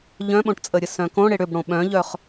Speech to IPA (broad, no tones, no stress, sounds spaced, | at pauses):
ʎ œ̃ ɓ õ ʈ t͡sʼ ə ɾʲ ə s œ̃ k õ ɽ e ɽ ʏ b ɽ õ ɓ œ̃ ʎ œ χ